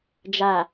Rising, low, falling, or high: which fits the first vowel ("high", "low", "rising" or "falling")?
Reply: low